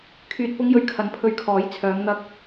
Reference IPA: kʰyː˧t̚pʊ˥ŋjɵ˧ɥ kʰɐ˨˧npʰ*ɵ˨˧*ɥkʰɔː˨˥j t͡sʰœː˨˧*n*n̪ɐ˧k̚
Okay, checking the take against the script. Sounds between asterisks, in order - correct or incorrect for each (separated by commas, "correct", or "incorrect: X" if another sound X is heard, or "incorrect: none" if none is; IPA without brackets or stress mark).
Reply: incorrect: ɵ˧, incorrect: ŋ